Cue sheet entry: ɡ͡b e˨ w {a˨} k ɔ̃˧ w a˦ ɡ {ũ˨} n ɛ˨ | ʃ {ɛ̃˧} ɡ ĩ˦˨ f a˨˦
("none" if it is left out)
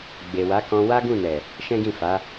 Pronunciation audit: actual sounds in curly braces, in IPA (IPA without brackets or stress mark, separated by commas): a˨˦, ũ˦˨, ɛ̃˦